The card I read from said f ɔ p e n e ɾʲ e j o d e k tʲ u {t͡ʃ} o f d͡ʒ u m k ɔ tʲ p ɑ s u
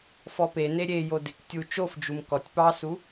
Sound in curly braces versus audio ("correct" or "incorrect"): correct